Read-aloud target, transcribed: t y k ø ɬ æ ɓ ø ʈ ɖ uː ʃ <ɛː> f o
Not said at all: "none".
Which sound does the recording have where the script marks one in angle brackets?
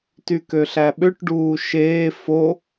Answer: eː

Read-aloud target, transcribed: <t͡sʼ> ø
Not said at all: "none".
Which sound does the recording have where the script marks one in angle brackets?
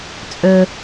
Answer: t͡sʼ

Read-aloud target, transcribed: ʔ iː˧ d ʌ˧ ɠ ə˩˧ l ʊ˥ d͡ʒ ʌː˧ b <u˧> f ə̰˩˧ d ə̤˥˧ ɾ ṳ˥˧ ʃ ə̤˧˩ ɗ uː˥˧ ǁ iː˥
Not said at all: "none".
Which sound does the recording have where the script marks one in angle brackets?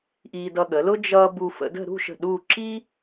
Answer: u˧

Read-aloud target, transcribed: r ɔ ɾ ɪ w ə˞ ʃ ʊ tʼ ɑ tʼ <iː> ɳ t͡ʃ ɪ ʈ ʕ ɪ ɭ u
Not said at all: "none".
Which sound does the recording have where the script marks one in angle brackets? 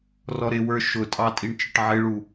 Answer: i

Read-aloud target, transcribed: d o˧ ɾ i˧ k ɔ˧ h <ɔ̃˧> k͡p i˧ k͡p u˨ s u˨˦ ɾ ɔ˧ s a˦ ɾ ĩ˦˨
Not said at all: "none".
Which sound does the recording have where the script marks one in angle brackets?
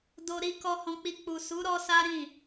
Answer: ɔ̃˧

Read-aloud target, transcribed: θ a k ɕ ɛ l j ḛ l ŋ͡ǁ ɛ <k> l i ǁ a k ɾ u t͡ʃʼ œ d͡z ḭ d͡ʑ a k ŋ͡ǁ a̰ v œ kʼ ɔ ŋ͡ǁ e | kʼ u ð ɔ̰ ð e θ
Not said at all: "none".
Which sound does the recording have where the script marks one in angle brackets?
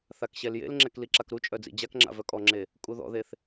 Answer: k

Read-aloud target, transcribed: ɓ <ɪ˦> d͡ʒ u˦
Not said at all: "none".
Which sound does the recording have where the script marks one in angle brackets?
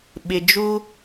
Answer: ɪ˨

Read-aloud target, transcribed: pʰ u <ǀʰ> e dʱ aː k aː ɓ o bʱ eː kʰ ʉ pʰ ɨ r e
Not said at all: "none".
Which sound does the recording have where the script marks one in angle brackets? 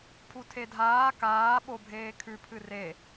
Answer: tʰ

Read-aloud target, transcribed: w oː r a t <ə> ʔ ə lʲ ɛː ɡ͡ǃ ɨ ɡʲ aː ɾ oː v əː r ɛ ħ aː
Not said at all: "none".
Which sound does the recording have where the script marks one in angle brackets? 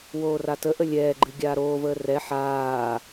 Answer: ə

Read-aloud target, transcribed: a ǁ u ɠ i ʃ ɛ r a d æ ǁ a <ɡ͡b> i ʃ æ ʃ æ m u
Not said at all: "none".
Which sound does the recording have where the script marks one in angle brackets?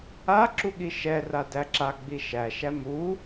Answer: ɡ͡b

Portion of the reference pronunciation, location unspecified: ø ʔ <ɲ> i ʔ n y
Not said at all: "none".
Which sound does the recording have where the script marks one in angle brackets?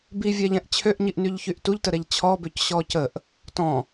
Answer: ɲ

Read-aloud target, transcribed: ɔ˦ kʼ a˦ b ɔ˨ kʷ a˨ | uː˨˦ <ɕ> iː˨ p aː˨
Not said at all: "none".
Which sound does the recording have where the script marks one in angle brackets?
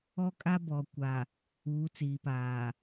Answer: t͡s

